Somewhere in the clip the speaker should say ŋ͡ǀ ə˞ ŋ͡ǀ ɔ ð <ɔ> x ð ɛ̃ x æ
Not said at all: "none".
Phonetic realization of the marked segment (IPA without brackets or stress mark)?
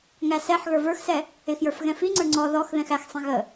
ɔ